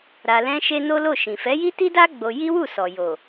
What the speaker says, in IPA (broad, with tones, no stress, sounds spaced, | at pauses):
ɾ a˧ l ɛ̃˦ ʃ e˦ n o˦ l o˦˨ ʃ ĩ˨ f ɛ˨˦ j i˦ t i˦ d a˦ ɡ͡b o˧ j i˦ w u˦˨ s ɔ˨ j o˨